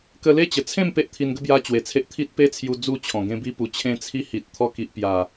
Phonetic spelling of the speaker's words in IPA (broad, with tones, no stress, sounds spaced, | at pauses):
k ə˧ l e˥˧ t͡ɕ ə˨˩ t͡sʰ ẽ˥˧ m p e˦ ʔ t̪ʰ i˧ n ɡ ə˦ b j a˦ t͡ɕ w e˨˩ t͡sʰ e˦ ʔ t̪ʰ i˦ t̚ p e˦ t͡sʰ j u˧ d͡z u˥˧ t͡ɕʰ ɔ̃˨˩ ɡ ẽ˧ b i˧ p u˨˩ t͡ɕʰ ẽ˧ t͡sʰ i˧ h i˨ t̚ t̪ʰ ɔ˧ k i˨ ʔ p j a˨˩